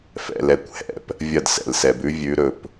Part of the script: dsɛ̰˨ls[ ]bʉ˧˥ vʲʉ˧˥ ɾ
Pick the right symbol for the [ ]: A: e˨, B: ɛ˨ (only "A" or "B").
B